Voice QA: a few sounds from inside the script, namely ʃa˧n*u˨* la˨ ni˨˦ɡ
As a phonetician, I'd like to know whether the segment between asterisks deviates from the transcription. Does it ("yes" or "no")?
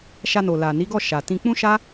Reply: yes